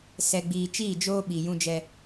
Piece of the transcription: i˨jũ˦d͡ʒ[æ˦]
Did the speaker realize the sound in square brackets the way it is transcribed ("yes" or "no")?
no